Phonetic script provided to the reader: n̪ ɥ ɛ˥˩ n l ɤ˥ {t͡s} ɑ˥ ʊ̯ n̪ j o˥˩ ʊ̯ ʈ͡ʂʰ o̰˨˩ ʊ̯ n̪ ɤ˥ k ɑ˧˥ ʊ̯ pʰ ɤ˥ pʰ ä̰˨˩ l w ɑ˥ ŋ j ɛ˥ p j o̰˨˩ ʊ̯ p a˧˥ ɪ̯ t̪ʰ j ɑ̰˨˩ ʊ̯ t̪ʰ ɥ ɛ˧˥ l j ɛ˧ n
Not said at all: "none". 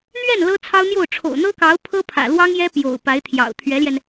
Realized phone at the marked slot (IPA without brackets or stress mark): t͡sʰ